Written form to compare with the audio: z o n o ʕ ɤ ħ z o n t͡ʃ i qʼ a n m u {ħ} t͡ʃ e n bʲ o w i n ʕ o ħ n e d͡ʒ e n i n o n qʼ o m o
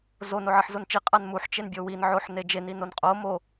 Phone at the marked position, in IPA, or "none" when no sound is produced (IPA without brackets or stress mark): ħ